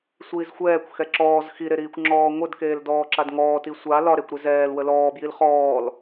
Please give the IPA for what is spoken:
sʷiːzxʷɛːkʷ xɛǁɔːz xiɾeɾiːkʷ ŋ͡ǁɔːŋʷədkeːldɔː ǁadŋɔːti sʷa lɒɾekʷ ɾɛzɛːlwə lɔːbjil χɔːl

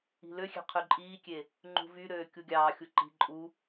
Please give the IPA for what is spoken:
i̤løxʲe̤ qʰyǃʼiːkʲe | ŋ͡ǃṳvyɾøː kʲuɡʲɑːxʲu ǃi̤ ǃʼu

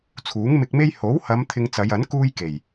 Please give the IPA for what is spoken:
t͡sʰuː˨˥ŋmɪ˧k̚me˥j ho˨˥whɐ˨˧m t̪ʰɪ˧ŋt͡sɐ˨˧jɐ˨˥n kuː˥jke˨˩j

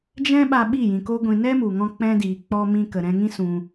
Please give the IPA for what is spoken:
d͡ʒɛ̃˦ɓa˧ ɓi˦˨jĩ˨ko˦ɡʷĩ˧ nɛ˦mu˨ŋɔ̃˧ k͡pɛ̃˦diː˨ k͡pɔ˧ mĩ˧kə˨ɾɛ̃˧ŋĩ˦ sũ˧

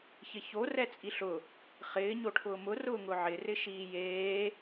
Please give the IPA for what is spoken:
çɪço rɛt͡sʼiɬʊ | χɪː ɲoʈʰʊːmʊ rʊːŋʊʕɪ rɪʃiːjeː

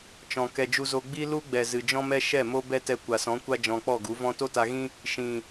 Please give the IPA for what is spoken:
t͡ʃɔ̃˨ kɛ˨d͡ʒu˧zo˧ ɡ͡bi˦lu˦ɡ͡bɛ˨ zɨ˨d͡ʒɔ̃˦mɛ˦ ʃɛ˦˨mo˦ bɛ˦tɛ˧ kʷa˨sɔ̃˨˦kʷa˦ d͡ʒɔ̃˧k͡pɔ˦˨ɡu˨˦ vɔ̃˧to˦ta˧ɣĩ˦ | ʃĩ˨

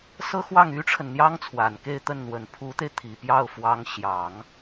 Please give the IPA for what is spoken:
sɤ˥xwɑ˥˩ŋy˥ʈ͡ʂʰə˨n n̪jɑ˥ŋt͡sʰwa˨˩nke˥˧ɪ̯t̪ə˥˩n n̪wə˨˩npʰu˧˥t̪e˧ɪ̯ t̪ʰi˨˩pjɑ˥˩ʊ̯fwɑ˧˥ŋ ɕjɑ˨˩˦ŋ

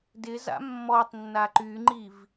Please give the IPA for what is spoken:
dɪza̰ mːɔtˤnːa ǃyŋ͡ǃiv

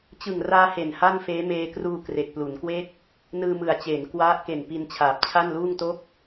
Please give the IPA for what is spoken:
t͡ɕɯ˨˩ŋraː˧ he˨˩nha˥˩nfeː˦˥ meː˧kruː˧kre˨˩k̚ plu˩˦nkwe˥˩k̚ | nɯː˧mɯ˨˩a̯t͡ɕe˩˦n kwa˦˥ʔ ke˨˩npi˧nt͡ɕʰaː˨˩p̚t͡ɕʰa˥˩n luː˥˩ŋto˥˩k̚

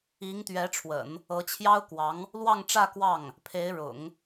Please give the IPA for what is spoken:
i˧˥ŋt̪ɥɛ˧˥ʈ͡ʂʰwə̰˨˩˦n | ɤ˧˥t͡ɕʰjɑ˥ʊ̯kwɑ˧˥ŋ | lwɑ˥˧ŋʈ͡ʂä˥˧ kwɑ˥˩ŋ | pʰe˧˥ɪ̯ɻʊ̰˨˩˦ŋ

